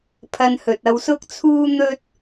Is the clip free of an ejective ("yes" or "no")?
yes